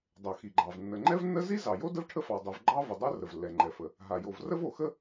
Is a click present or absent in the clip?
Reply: present